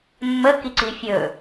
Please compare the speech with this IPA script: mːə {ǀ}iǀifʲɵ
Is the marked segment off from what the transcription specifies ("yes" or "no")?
yes